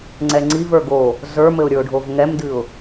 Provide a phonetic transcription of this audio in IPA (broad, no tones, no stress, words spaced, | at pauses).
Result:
ŋ͡ǀɛŋ͡ǀiv ə˞ɡo | zə˞mɘʊ̯ɾʲə˞ʊ̯ɖʱov ŋɛmdɨʊ̯